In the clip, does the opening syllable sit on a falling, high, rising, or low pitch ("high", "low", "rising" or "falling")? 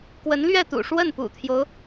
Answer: rising